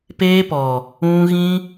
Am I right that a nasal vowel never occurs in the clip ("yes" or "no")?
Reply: no